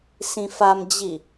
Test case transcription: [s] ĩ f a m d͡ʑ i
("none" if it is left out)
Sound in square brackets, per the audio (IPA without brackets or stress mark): s